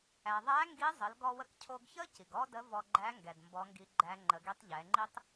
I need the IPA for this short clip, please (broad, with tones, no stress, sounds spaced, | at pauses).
æ˩ ðˤ æ˧˥ ŋ ɡ i˧˥ zˤ ə˩˧ l ɡ ɔ˧ w ə˧ k cʰ o˧ ɡ ç ə˥ c i˩ ɡ ɔ˥ d ə˧˥ v ɔ˧ ɡ͡ǃ æ˧˥ ŋ ɡ ɛ˩ d m b ɔ˧˥ ŋ ɡ i˧˥ ɡ͡ǃ æ˧˥ ŋ͡ǃ ə˩˧ ɡ i˧˥ tˤ ʎ ɛ˩˧ ŋ͡ǃ i˥ tˤ